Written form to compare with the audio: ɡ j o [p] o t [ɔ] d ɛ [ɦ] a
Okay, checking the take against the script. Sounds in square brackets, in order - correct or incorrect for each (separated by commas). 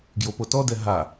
correct, correct, correct